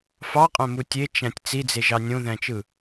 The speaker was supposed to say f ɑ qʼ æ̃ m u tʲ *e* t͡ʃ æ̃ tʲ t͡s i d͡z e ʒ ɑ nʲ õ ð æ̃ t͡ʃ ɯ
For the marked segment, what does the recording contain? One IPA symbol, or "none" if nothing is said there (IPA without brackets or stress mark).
e